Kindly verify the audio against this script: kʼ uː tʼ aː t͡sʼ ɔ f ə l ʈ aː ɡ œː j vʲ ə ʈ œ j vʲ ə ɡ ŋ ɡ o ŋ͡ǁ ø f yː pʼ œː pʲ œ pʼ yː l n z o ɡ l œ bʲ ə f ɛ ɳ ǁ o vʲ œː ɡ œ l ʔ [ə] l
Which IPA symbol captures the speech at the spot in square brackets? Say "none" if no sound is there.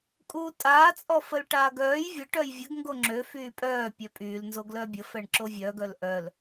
œ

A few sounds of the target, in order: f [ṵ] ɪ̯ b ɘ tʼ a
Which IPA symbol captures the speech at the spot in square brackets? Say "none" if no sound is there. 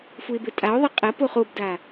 u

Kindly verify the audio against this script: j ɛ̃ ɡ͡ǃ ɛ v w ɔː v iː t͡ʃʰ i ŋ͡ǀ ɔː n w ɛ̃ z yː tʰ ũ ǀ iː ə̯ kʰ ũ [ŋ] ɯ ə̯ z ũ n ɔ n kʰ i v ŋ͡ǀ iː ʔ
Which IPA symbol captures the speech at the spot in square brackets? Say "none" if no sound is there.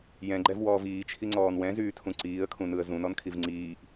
n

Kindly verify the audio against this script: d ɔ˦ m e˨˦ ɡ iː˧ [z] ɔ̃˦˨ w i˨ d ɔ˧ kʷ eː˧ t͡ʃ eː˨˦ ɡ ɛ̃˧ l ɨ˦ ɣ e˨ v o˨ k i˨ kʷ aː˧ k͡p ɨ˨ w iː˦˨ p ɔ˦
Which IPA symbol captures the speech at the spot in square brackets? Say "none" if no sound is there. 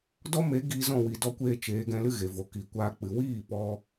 z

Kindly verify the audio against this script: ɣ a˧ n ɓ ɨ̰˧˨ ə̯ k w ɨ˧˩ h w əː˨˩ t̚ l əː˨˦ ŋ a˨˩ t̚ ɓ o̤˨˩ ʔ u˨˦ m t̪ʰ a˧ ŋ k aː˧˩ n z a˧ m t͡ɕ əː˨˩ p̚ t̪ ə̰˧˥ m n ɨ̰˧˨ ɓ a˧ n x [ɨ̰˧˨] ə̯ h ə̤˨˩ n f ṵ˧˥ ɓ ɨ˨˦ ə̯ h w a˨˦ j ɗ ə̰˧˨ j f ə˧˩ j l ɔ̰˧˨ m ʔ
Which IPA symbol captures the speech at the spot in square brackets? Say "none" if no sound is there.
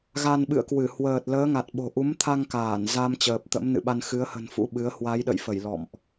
ɨ˨˦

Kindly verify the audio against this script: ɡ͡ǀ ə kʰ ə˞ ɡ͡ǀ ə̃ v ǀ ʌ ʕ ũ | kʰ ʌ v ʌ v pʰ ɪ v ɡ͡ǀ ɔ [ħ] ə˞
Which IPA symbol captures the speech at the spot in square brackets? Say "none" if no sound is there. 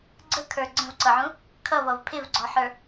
ħ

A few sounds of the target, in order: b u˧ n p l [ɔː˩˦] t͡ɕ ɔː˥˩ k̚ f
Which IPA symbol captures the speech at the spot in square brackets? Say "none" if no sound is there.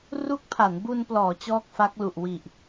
ɔː˩˦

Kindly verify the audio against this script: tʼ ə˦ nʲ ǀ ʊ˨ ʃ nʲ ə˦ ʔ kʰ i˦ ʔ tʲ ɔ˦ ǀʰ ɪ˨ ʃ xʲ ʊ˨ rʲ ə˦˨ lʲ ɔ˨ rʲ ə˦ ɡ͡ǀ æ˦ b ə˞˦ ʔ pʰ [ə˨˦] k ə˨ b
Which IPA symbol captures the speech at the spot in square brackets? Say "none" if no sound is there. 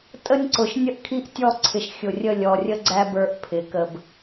ɪ˨˦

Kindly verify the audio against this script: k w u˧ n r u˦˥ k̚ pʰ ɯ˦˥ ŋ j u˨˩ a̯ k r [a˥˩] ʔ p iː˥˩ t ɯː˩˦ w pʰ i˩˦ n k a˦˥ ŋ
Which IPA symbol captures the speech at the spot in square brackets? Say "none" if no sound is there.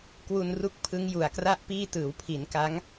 a˥˩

